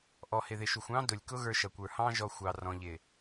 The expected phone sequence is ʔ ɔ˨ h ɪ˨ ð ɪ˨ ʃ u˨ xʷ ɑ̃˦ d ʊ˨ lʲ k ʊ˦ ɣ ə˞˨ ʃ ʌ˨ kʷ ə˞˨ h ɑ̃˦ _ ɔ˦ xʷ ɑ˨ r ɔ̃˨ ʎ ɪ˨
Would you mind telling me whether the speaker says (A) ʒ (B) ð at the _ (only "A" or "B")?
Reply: A